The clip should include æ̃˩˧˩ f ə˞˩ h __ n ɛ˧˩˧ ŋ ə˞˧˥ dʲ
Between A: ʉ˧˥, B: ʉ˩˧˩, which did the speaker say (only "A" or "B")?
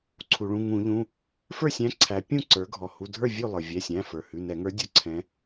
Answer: B